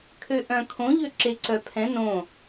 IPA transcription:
kʰ ø ʔ œ̃ kʰ õ ʎ ø ǁ e ǀ œ pʰ ɛ̃ n õ

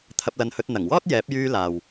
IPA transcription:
t̪ʰ ɐ˧ p̚ l ɐ˧ n h ɵ˧ t̚ n̪ ɐ˨˩ ŋ w ɔː˥ t̚ j ɛː˨˥ p̚ j yː˧ l aː˨ w

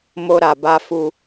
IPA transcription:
m o˦ ɾ a˧ b a˦ f u˦

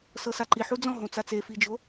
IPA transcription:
s ɤ s a ǃ i ħ u d͡z ɔ̃ ɦ õ t͡s a t͡s e f i d͡ʒ o

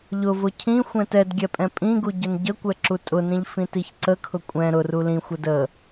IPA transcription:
ʎ ʊ v ʊ cʰ ĩ xʷ ɛ̃ t ɛ d ɡʲ ɛ pʼ ɛ̃ pʼ ĩ ɡ u ɟ ə n ɟ ə kʷ ɛ ǁ u tʼ ʊ n ĩ ʎ f ĩ t i ç ǀ ə kʰ ʊ kʷʼ ɛ̃ ɾ ʊ r u l ĩ xʷ ə d ə

